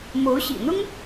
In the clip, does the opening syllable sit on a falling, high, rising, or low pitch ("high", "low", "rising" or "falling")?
rising